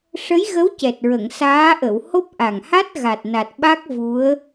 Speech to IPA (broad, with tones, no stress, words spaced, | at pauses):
ʂə˧˥jɣə˧˥w cɛ˨˩t̚ɹə˨˩˨ŋsaː˧˥ʔə˨˩˨w ho˦˥p̚ʔa˨˩ŋha˦˥t̚ ɣa˨˩t̚na˨˩t̚ɓa˦˥k̚ vu˧˥ə̯